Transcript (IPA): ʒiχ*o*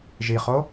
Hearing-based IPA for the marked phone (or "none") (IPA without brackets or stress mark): o